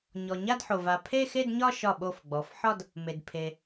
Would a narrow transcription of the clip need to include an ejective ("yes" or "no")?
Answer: no